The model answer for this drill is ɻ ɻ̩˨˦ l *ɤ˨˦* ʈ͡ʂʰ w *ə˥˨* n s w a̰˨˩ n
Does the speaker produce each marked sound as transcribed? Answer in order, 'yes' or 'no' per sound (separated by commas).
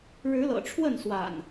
no, yes